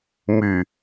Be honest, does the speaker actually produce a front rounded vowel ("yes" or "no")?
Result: yes